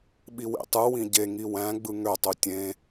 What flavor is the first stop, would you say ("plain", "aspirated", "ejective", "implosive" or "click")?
implosive